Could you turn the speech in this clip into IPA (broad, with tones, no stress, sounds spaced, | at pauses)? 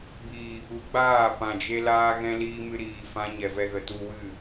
b iː˨ | u˨˦ ɡ͡b aː˦˨ p ã˨ d͡ʒ e˧ l aː˧ ɣ ɛ̃˧ l iː˧ m ɨ˧ ɾ iː˧ f ã˦ ɲ ɛ˧ v ɛ˧ ɣ ə˨ t u˧ w ɨ˦˨